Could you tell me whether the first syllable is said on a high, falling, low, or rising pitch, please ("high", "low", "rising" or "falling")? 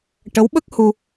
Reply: rising